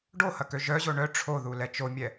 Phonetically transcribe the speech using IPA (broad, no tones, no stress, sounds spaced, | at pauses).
ɖ o h ɐ k ø ʒ œ ʑ o ɳ œ ʈ͡ʂʰ o ð u l ɛ t͡ʃ o mʲ ɛ